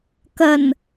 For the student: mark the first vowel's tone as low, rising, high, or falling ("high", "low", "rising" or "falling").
low